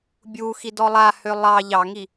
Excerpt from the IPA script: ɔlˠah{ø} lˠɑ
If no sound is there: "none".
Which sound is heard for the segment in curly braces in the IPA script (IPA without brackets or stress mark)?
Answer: ø